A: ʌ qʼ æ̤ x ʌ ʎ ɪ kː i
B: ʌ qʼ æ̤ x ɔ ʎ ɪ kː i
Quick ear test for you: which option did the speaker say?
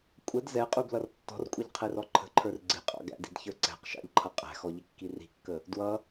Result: B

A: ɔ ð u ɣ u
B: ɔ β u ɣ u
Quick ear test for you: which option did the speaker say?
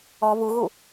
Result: B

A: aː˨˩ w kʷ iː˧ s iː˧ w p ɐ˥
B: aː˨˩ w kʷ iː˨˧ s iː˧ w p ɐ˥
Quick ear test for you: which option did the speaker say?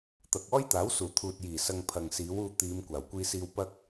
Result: A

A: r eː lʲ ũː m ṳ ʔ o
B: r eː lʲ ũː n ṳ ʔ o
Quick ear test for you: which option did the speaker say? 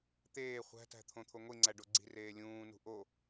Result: B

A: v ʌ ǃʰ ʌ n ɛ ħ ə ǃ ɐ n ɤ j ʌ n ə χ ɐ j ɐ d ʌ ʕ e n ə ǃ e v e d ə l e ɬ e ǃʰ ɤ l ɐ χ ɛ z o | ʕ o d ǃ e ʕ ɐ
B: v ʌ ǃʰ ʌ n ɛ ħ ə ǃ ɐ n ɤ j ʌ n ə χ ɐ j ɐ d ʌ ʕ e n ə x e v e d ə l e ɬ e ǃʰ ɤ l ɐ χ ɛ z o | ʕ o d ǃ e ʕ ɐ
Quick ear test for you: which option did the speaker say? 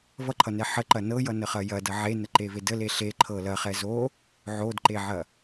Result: A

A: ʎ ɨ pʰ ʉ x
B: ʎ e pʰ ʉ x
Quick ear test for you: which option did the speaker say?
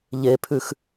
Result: B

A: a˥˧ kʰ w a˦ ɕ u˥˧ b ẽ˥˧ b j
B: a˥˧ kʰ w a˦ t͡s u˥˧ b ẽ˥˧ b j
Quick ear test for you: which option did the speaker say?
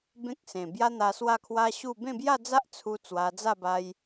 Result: A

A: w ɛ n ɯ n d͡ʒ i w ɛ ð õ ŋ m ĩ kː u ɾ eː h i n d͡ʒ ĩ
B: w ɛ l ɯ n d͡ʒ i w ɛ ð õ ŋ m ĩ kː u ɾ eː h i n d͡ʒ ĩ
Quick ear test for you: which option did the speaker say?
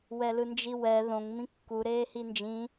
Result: B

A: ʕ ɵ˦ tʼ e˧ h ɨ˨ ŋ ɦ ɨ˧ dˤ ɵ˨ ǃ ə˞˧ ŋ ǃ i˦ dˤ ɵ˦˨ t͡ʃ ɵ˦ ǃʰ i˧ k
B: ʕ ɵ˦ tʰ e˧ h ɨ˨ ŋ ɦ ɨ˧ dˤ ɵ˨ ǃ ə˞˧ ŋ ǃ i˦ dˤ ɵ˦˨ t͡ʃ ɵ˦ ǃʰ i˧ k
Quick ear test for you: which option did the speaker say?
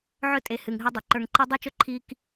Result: A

